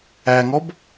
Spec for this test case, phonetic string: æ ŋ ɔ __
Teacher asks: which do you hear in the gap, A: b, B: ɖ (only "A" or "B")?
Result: A